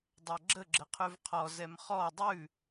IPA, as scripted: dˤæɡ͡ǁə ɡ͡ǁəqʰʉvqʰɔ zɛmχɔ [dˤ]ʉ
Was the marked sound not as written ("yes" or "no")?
no